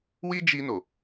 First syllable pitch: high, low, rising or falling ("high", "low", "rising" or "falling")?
high